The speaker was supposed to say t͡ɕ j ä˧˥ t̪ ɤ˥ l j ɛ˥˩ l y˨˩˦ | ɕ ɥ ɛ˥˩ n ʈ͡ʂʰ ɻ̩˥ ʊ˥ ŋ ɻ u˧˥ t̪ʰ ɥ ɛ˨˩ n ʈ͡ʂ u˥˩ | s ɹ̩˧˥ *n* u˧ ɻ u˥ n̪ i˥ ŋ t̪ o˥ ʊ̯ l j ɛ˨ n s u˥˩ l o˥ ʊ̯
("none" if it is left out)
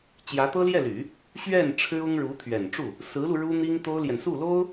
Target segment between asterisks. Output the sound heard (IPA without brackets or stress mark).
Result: l